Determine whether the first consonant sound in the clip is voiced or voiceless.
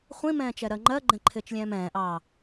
voiceless